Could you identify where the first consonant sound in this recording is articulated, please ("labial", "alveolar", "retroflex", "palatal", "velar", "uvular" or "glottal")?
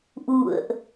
glottal